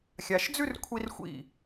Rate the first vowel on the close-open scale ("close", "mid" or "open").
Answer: open